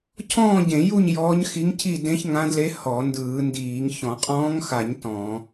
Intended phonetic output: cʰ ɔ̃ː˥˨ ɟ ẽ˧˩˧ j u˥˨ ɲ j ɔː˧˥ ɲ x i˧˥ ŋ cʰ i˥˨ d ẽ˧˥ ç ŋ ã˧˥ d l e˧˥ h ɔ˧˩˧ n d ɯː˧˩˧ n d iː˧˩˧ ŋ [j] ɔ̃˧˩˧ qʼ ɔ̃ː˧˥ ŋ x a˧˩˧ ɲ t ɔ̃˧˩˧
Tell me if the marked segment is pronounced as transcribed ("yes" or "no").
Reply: no